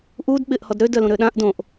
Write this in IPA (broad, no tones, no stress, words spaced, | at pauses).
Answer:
ʔud ɓɪʔ hɔdɾø dœlũɾøɗãʔ dõʔ